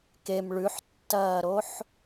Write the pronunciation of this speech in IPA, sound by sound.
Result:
kem ɭʉħtːɐːɾoħ

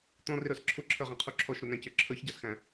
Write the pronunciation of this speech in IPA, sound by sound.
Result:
t̪ɔ̃rɪɾə˞s ǁʰʊǁʰə˞ʁæ̃qʰu ǁʰɔʃɾʊnæ̃cə˞ ǁʰə˞çɟɑsxæ̃

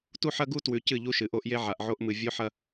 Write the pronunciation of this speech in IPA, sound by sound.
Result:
tu˦ħɐ˦ɡu˦ twʉ˨cɨ˦˨ ʎu˦ʃɨ˨ʔo˦ʔje˦ ʕa˨ʔʕo˦ʔmɨ˨ vʲo˦ħɐ˦

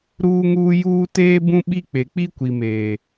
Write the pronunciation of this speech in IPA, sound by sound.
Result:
ɾuː˦ŋuː˦juː˦ teː˦ bũ˦ɓi˦k͡pe˨ k͡pi˦kʷi˨meː˨

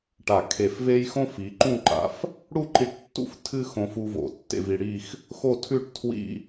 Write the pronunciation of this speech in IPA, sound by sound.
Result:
ʈa˧˩ kʰe˧˩fve˥j xõ˥fi˩˧ǃũ˥˧ǃa̰˧f | ɽu˥˧ǃi˧ʈtːṵ˥˧f tʰɨ˥ xõ˧fu˧ vo̰˩˧tːḛ˥˧vi˧ ɽi˥˧x | xo˥˧tʰʉ˥˧ʈ tʰwḭ˥˧

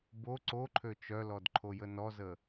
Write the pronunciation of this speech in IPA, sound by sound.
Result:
bo ǀoǃʰø t͡ʃœlɔdǃʰojə nɔzə

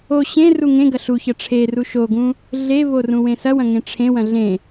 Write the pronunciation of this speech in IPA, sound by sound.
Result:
o ɕẽ ruŋẽɡɐ ɬuçɐ ʈ͡ʂʰeru ʃoɡũ | ɮevo rũwẽsɐwɐ̃ ŋẽʈ͡ʂʰẽwɐ̃ ɮẽ

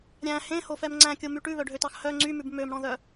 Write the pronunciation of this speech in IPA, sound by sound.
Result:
ɾʲæ̃ hẽhofɛm ŋ͡ǀæ̃kʲomy ʈʉβœɖʱøtɑx hœ ŋ͡ǀymʉb mømɽɔ̃ðœ

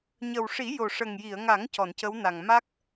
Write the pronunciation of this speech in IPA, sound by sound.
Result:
ɲə˨˩wʂi˨˩˦ jo˨˩ʂə˨˩ŋji˨˩˨ə̯ŋa˨˩˦ŋ cɔ˨˩˨ncə˧˥wna˨˩ŋ ma˦˥k̚

